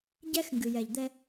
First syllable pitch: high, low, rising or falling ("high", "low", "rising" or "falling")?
high